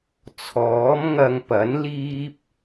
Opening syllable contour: rising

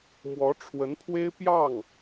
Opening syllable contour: rising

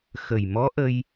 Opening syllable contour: low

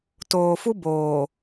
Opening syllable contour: low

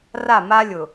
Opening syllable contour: falling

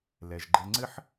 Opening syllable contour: low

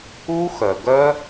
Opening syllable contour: high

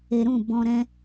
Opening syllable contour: low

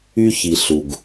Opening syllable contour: high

